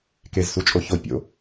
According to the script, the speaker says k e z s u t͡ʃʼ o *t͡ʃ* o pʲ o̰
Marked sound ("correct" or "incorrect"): incorrect